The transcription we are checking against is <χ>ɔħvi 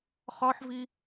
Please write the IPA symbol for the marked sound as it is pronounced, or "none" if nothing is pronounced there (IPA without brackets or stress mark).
χ